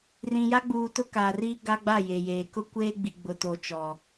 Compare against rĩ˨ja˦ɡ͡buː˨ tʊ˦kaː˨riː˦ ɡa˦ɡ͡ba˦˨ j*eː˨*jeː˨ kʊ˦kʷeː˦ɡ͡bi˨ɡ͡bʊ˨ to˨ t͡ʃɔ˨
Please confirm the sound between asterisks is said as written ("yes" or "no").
no